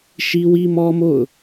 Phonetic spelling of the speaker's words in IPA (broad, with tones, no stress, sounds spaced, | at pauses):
ʃ i˦ w i˦ m ɔ˦ m o̰˦˨ ʊ̯